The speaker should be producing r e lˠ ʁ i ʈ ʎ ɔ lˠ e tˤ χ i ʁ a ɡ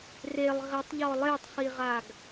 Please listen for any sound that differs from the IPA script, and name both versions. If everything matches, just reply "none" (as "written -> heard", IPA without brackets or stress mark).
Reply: ʈ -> tˤ